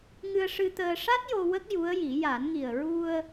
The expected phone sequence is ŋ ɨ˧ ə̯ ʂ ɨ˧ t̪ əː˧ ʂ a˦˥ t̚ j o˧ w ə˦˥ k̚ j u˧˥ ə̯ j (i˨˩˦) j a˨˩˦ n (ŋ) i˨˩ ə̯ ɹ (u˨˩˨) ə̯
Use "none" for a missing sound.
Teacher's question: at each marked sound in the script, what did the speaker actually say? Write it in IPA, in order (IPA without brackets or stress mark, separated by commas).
i˨˩˦, ŋ, u˧